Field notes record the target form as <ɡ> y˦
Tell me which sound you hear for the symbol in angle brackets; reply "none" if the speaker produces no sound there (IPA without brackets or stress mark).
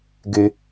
ɡ